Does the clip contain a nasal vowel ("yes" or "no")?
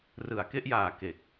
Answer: no